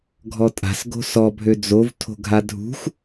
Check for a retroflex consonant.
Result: absent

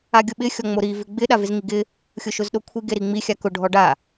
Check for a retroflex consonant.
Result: present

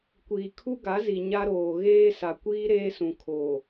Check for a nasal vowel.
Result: present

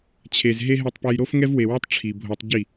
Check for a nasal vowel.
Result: absent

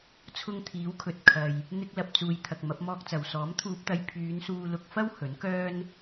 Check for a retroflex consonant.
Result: absent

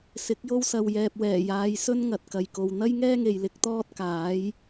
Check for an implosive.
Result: absent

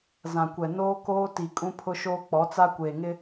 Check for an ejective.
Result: present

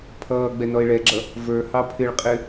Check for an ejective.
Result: present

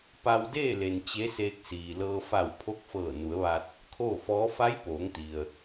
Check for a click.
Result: absent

